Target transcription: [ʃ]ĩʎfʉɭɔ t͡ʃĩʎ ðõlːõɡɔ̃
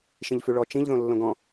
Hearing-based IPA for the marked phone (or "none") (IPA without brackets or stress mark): ʃ